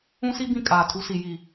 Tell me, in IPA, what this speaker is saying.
ũ˦ s i˦ b ĩ˦˨ kʼ aː˨ tʰ u˨˦ s i˨ j i˨

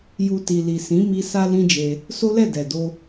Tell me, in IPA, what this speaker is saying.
j u˨ t i˨ l i˨ s ĩ˨˦ m i˧ s a˦ l ĩ˦ d͡ʒ e˧ | s o˦ l ɛ˦˨ d ɛ˨ d o˧

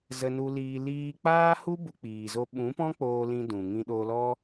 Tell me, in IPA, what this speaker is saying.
z ə˧ n u˧ l iː˧ l iː˧ k͡p aː˦ h u˦ b u˧ k͡p iː˨ z o˧ ɓ ũ˨˦ p ɔ̃˦ k͡p oː˧ l ĩ˧ d ũ˨ ŋ ĩ˧ ɗ oː˧ l ɔ˦

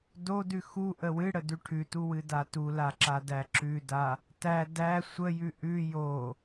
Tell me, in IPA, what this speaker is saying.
d o d ʉ x u ʔ ə w ɨ ɽ ə d ʉ ʈʰ ʉ t u w ɨ d a t u l a ǁ a d æ ǁ ʉ d a | t æ d æ sʷ ə j ʉ ʔ ʉ j o

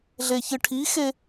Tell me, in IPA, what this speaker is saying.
ɮ e ç ɨ ʈʰ i x e

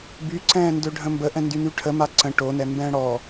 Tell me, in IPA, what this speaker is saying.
b y ǀ ɛ̃ː n d ø ɖʱ ə̃ m b ə ʔ ɛ̃ n d y n y ʈʰ ə m a ǀ ə̃ ʈ o n ɛ m b ɛ̃ː ɽ ɔ

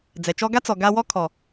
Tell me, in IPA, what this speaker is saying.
d͡z ɛ˨ t͡ʃ ɔ˦ ɡ a˦ t͡s ɔ˨ ɡ a˧ w ɔ˦ kʰ ɔ˨

